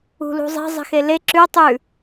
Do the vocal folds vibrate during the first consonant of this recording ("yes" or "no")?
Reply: yes